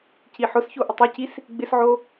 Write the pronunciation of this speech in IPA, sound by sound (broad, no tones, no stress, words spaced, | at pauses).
ciħʊsço ʔɪtˤocis | ɡ͡bɪsʕo